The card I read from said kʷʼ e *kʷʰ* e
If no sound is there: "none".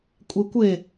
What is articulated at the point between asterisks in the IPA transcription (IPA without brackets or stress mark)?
kʷ